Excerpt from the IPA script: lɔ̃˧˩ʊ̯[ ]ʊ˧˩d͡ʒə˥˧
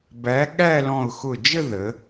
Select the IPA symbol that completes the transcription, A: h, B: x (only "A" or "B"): B